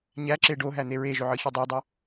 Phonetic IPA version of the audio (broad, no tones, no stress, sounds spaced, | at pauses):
ɲ æ ǁ e ɖ o ɦ æ n̪ e ɹ e ʒ ø ʕ ɯ ç o dˤ o dˤ ø